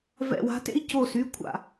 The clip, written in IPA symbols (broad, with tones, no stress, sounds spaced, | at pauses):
v ɛ̰˧˩ w a̤˨˥ t ḛ˦ i̯ c o˧˩ s y˩˧˩ kʷʰ a̰˧˩